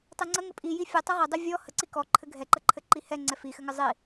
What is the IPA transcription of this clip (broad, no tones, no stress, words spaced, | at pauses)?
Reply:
tˤɘŋ͡ǀə ŋɘpʼi jifʲɔ tˤɛʁədˤi vʲɔ həǀi kɔǃʰɘ ɡʱɛǃəǃʰɘ ǃihɛ ŋ͡ǀɛfixɘŋɘ zˤi